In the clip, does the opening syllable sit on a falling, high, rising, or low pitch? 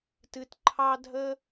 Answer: low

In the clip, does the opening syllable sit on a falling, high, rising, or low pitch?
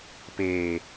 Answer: low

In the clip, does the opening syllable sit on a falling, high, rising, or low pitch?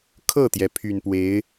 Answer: falling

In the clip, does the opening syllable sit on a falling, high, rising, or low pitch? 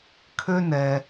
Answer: high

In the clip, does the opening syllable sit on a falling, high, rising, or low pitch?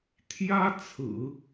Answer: high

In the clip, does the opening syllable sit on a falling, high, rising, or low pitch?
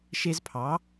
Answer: high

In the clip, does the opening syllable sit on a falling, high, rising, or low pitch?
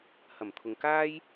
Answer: low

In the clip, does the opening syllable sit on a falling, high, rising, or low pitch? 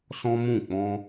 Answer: high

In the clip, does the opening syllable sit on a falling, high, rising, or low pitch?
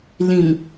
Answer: low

